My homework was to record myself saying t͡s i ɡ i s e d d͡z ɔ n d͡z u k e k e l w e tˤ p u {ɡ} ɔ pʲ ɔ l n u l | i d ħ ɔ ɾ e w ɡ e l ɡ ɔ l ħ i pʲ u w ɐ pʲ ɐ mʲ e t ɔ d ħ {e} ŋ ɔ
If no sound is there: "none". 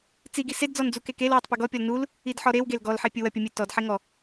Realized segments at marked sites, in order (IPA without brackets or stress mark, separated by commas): ɡ, e